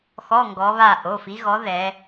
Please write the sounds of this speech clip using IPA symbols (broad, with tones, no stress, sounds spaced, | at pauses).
x ɔ˧˥˧ ŋ ɡ ɔ˨˦ β a˦˨ ʔ o˩˧˩ f i˨˦ ɣ ɔ˨˦ ð ɛ˨˦